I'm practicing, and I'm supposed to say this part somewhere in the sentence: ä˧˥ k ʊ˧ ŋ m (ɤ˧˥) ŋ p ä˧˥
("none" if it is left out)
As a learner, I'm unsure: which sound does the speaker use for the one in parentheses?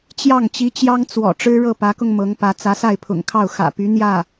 ɤ˧˥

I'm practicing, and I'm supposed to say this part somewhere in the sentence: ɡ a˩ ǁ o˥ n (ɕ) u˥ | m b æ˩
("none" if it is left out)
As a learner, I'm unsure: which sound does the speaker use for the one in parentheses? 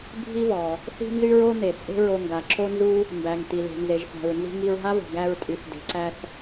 z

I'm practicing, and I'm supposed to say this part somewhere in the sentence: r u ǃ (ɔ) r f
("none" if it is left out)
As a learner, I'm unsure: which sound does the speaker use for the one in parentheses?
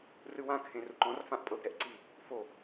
ɔ̃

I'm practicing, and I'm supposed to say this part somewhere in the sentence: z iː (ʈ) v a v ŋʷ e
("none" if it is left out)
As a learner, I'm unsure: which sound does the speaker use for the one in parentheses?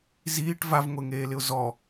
ʈ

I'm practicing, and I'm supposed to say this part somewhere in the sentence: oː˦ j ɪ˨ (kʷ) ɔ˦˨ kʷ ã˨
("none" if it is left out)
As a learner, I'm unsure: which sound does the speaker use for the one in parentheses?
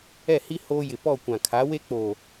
p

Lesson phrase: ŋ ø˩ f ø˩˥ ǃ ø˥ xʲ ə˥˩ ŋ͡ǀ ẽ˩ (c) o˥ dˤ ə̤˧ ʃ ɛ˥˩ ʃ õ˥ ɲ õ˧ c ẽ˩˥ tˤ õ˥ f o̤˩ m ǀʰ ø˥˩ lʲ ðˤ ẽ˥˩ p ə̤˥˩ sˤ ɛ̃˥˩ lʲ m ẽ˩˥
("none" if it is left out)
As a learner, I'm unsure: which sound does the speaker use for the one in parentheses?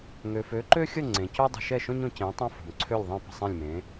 c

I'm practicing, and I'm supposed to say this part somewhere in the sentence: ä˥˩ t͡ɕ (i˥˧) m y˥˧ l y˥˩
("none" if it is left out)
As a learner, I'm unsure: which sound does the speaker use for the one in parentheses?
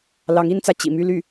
ḭ˨˩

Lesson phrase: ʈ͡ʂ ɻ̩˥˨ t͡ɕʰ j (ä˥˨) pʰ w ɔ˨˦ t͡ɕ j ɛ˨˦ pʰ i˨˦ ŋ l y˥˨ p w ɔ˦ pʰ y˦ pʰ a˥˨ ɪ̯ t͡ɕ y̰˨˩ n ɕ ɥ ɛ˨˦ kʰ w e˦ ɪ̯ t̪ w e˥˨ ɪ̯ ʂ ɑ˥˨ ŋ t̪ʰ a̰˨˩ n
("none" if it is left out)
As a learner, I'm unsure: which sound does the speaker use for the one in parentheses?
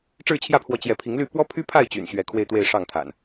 ä˥˨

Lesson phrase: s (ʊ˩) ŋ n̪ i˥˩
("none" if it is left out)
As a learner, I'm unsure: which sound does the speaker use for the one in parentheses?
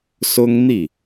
ʊ˥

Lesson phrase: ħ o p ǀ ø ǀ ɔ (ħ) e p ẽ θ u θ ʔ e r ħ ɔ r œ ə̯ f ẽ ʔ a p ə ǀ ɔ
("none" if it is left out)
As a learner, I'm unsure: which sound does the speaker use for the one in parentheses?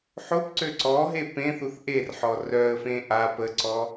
ɦ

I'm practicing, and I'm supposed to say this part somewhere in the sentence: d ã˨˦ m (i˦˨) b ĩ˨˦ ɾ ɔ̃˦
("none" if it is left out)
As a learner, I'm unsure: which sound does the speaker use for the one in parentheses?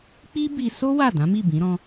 i˦˨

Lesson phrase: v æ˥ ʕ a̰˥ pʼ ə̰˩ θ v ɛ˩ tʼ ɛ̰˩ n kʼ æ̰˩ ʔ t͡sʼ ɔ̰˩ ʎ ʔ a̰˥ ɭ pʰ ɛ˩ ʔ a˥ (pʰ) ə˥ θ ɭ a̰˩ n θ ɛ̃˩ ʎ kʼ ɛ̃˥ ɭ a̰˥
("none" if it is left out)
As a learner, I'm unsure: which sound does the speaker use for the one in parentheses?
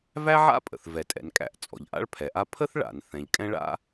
pʰ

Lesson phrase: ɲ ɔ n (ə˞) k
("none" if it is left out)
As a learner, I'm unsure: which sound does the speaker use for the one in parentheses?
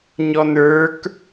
ə˞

